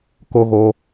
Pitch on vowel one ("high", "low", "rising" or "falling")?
high